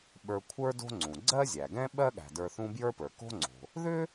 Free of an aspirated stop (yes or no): no